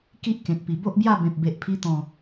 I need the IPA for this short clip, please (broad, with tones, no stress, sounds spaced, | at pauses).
k i˦ ʔ k ẽ˨ t̚ p i˨˩ b o˦ ʔ b j a˥˧ b ẽ˨ p̚ b e˨ ʔ pʰ i˧ t̪ ɔ̃˨˩